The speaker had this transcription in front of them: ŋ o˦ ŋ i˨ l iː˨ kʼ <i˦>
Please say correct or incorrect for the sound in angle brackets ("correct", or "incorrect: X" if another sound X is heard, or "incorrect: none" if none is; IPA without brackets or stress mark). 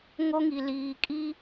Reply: correct